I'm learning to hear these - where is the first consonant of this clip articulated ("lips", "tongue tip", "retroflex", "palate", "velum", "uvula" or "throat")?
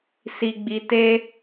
tongue tip